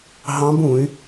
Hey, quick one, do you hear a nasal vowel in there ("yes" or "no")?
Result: yes